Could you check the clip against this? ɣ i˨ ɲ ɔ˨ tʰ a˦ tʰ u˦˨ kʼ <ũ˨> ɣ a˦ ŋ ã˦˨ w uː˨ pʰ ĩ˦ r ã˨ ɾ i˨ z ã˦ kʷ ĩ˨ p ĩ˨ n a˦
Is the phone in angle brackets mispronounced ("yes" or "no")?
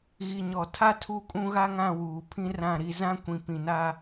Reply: yes